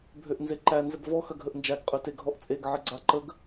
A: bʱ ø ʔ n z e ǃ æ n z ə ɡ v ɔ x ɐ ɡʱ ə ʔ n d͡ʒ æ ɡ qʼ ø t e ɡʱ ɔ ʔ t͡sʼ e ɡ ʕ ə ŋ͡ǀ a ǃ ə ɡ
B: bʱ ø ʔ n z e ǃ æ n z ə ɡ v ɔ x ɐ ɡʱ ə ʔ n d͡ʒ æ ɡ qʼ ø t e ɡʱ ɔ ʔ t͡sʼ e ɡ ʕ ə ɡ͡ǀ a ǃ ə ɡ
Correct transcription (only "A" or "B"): B